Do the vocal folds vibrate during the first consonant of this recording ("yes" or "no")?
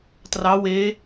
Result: no